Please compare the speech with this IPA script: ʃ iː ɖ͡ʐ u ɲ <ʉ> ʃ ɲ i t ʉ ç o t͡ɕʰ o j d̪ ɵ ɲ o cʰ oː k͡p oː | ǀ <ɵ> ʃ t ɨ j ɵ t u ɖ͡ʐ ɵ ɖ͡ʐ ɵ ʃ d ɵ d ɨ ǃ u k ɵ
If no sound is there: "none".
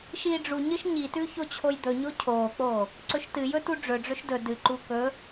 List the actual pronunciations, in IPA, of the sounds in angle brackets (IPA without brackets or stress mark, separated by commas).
ɨ, ɵ